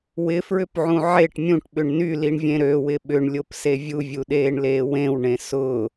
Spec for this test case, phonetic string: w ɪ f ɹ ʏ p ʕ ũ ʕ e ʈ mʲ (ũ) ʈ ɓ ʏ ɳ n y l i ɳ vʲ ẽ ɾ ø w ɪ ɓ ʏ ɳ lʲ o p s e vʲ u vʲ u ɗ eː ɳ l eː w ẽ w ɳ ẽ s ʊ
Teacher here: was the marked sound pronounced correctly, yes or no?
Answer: yes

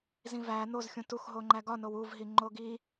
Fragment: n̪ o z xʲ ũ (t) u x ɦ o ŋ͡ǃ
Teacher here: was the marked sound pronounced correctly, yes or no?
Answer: yes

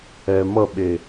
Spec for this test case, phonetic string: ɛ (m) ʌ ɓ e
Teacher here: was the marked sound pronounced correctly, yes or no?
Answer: yes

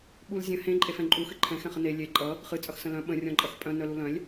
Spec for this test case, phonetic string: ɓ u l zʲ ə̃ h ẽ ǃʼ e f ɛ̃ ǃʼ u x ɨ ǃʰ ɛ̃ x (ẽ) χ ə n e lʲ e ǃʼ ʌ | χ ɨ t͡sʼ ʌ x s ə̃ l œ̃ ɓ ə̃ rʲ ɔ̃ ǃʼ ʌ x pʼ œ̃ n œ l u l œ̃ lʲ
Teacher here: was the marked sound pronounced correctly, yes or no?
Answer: no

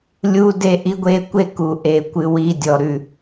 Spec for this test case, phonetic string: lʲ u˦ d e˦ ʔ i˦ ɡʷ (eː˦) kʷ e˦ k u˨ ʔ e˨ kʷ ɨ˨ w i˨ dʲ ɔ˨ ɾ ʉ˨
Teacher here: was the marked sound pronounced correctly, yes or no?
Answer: no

